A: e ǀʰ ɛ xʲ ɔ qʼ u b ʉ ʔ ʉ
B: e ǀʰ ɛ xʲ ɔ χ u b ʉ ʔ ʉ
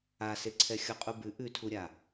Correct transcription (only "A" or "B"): A